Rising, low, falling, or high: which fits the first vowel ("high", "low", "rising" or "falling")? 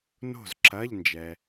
falling